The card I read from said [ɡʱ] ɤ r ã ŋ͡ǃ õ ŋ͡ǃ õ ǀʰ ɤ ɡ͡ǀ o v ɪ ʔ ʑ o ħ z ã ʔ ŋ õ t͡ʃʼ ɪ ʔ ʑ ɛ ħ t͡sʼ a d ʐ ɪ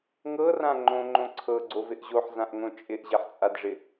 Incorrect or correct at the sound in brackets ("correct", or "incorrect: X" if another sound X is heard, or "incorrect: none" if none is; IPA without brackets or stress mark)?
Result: incorrect: ŋ